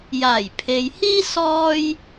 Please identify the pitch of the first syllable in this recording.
low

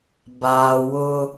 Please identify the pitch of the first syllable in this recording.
low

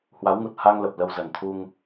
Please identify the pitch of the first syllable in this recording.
rising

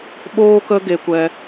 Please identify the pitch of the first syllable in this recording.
high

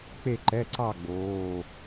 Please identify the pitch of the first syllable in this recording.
falling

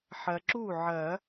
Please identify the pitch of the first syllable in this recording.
low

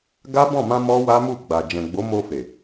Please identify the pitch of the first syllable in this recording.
high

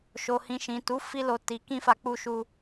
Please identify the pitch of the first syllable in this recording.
low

